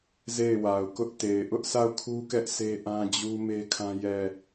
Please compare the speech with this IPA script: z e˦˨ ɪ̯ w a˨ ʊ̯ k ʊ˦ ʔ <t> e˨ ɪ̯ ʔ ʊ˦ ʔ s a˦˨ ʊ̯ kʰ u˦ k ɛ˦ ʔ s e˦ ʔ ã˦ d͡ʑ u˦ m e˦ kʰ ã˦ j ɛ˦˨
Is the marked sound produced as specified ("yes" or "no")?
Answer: yes